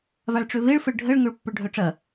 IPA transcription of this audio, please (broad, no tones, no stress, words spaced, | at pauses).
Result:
vaɭʈ͡ʂøveɭ fəɭɖʱəɭ ŋøɭpːʊɭɖʱœʈ͡ʂɐ